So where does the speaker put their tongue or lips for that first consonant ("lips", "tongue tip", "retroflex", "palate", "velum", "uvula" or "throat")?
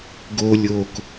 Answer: velum